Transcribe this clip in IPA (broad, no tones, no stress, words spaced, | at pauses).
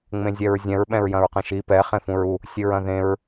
ŋ͡mẽzʲɛɹzʲɛ̃ɹ ɓɛ̃ɹjɐ̃ɹqɛ̃ʃi pɛ χẽfũɹu | sʲɨɹɐ̃ðẽɹ